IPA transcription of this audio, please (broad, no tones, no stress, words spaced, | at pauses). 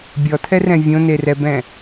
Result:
bʲɔtʰɛrɛ̃ vʲõnerɛbɛ̃